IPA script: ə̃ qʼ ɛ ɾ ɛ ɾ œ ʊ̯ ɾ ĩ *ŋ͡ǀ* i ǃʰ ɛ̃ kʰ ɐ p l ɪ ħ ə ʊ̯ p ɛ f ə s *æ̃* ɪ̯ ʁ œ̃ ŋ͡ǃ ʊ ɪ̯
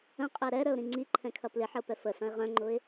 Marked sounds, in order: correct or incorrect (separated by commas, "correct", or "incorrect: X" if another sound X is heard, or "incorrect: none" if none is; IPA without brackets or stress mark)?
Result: correct, incorrect: ɐ̃